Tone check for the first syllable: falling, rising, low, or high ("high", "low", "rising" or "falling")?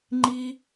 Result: high